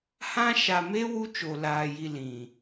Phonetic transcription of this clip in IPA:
h ã˦ ʃ a˨ m e˦ w u˦ t͡ʃ o˨ l aː˨ j i˨ l ĩ˨

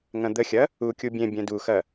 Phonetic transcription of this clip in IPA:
ŋ ɐ̃ d̪ ə xʲ ɐ | u kʲ u bʲ ẽ bʲ ɛ̃ d u x ɐ

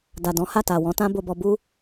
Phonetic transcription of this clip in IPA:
d a˨ d ɔ̃˨˦ h a˦˨ t a˨ w ɔ̃˨˦ t ã˦ b o˧ b ɔ˧ b u˧

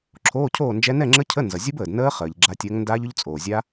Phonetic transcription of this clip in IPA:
ǁʰ oː˧˥˧ cʰ oː˥˨ n d͡ʒ ɛ˦˥ n ɛ˥˨ ŋ͡ǁ ə˦˥ cʰ ə˧˥˧ n z ʌ˩ zʲ ʊ˦˥ b əː˩ d n əː˦˥ χ əː˩ ʎ ɡ͡ǁ a˨˦ tʲ əː˨˦ ŋ n d aː˦˥ ʎ ʊ˦˥ ʎ t͡sʼ oː˩ zʲ a˦˥

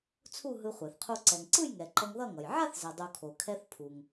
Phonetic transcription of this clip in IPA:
t͡sʰ u˥˧ ɦ ɯ˧ χʷ ɛ˩ θ qʰ u˧ ǀ ɛ˩ ŋ ǀ ɯ˥˧ j ŋ ɛ˩ ǃ ʌ˧ ŋ ð ʌ˥˧ ŋ ʌ˩ j ʕ a˥˧ θ z ɛ˩ dˤ u˩ kʰ o˩ kʰ ɛ˧ θ pʰ u˩ ŋ

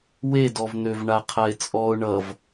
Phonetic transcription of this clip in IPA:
w e d ɔ v n̪ ø v ɳ a qʰ a ɪ̯ t͡sʼ ɔ ʊ̯ ɳ ʌ v

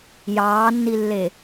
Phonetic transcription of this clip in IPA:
j ɑː nː i lː e

